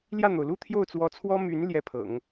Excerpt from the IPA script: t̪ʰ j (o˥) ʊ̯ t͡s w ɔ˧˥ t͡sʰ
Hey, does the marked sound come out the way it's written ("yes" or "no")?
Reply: no